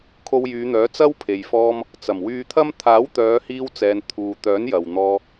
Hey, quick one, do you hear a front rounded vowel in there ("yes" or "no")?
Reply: yes